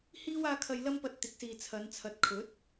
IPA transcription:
hiː˥w aː˥ kʰɐ˧jlɐ˥mpɐ˧t̚ t̪ɪ˨˥k̚siː˨ t͡sʰɐ˨˧nt͡sʰɐ˨t̚kʰɵ˨˥t̚

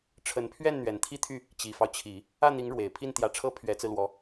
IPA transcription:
ʈ͡ʂʰə˧˥npʰɥɛ˥˩n n̪ɥɛ˨˩nt̪ʰi˥˧t̪ʰy˥˩ | t͡ɕi˨˩fɑ˦ʊ̯t͡ɕʰi˨˩˦ | ä˥˩n̪i˧˥ŋ ɻwe˨˩ɪ̯ pʰi˥˩nt̪jä˧˥ʈ͡ʂʰɤ˥ pʰɥɛ˧˥t͡sɹ̩˧lwɔ˧˥

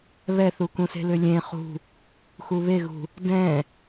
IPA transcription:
βɛθukũse̤ lʏlʲẽ χṳ | xuβeɣṳ | dɛ̃

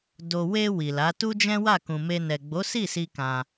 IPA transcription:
do˧ we˧ wi˨la˨˦ tu˦d͡ʒɛ̃˦ wa˦˨kũ˨me˧ nɛ˨ɡ͡bo˨˦si˦˨si˧ kã˧

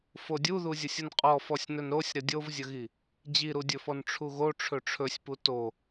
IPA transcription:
fodʲuðuzʲəsʲ ənqʼɔfɔsʲnɵn ɾosʲɾə dʲovzʲəɣi | d͡ʑiɾudʲɵfɔn ʈ͡ʂʰuɣo ʈ͡ʂʰɵʈ͡ʂʰɵsʲpu to

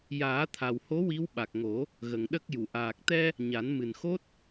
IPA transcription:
jaː˨˩˦t̪ʰa˨˩who˧˥ wi˧˥wɓa˨˩k̚ŋo˨˩˦ | ɣə˨˩ŋɗə˦˥k̚ju˨˩˨ ʔaː˨˩k̚t̪ɛ˧ | ɲa˨˩˦nmɨ˨˩nxo˦˥t̚

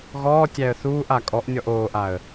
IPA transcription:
ɣɔːtʲæə̯ θuːʔa kʼɔʔnʲɔʔ oːʔaə̯

